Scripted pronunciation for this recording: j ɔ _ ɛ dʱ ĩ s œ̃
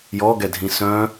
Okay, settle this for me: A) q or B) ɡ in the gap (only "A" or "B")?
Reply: B